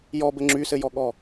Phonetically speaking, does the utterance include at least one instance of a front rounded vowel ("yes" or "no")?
yes